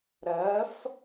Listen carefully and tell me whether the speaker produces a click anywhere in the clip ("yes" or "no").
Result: no